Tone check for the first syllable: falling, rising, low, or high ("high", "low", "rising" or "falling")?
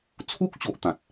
high